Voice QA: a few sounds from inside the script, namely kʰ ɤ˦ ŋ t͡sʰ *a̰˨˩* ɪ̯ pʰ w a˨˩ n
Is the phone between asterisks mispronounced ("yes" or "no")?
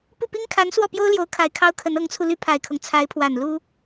yes